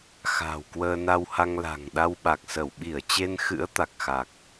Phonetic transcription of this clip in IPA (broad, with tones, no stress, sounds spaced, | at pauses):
x a̤˨˩ w k w əː˧ n a˧ w h a˧ ŋ l a̤˨˩ ŋ ɗ a˧ w ɓ a˨˩ k̚ s ə˧˩ w ɓ i˧˩ ə̯ t͡ɕ e˧ n x ɨ̰˧˥ ə̯ t̪ a˨˩ k̚ x a˨˩ k̚